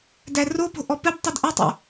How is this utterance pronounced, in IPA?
dæropo̤ ʔɔpɘb tˤɘdʔɘtˤo̰

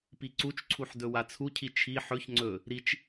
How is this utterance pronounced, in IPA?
piǀut͡ʃǀʰuħ dɵwat͡sʰucʰi t͡ʃʰi ħɵç ŋ͡ǀɵ | ɾit͡ʃ

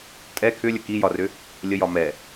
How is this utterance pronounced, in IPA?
tʼɛ kʰʏlʲə kijɒrʏ | lʲəjɒ mɛ

